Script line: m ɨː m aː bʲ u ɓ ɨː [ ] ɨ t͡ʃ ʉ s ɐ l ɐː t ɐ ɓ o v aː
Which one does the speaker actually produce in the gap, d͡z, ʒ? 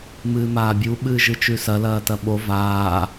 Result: ʒ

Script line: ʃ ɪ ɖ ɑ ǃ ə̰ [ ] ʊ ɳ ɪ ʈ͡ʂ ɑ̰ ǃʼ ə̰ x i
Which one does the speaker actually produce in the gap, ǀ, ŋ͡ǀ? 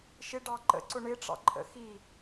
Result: ǀ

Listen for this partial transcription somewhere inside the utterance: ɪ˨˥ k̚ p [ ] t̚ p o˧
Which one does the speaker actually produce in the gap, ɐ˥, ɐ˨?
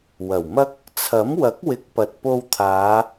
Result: ɐ˨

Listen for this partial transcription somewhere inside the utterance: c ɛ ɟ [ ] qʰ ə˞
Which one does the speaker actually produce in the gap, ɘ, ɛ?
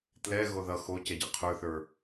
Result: ɘ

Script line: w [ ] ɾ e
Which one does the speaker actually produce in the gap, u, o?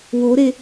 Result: o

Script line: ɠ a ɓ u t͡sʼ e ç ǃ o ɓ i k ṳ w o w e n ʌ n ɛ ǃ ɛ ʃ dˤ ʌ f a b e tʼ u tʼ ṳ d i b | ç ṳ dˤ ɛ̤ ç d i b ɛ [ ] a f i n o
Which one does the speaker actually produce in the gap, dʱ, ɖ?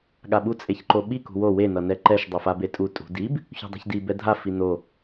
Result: dʱ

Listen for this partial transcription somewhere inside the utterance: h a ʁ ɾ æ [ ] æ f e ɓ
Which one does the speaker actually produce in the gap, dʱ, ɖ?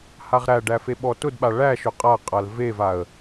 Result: ɖ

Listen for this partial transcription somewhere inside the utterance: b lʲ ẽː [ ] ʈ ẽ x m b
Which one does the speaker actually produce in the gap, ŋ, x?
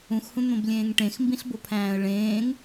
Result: ŋ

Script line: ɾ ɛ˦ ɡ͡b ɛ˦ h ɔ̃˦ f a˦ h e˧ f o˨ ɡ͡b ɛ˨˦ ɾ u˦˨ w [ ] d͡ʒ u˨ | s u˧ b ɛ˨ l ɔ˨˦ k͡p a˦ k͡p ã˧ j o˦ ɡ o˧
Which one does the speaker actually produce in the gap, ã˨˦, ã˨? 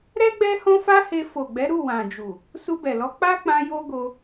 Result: ã˨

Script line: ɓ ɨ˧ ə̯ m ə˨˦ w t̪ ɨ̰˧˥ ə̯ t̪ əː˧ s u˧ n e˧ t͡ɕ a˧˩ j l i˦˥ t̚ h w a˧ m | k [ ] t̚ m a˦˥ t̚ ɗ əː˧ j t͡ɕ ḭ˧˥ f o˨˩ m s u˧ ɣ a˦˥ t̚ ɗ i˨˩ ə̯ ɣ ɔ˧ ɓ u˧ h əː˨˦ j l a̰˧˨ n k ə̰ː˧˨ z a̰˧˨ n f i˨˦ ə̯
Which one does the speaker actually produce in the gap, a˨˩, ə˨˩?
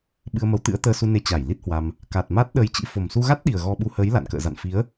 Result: a˨˩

